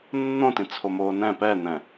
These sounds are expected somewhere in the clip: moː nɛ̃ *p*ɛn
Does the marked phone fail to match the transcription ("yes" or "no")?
no